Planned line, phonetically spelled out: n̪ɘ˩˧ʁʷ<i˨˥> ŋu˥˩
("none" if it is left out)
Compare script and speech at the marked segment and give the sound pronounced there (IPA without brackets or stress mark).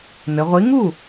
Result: i˨˥